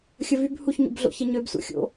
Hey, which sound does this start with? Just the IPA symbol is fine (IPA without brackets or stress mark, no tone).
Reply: xʲ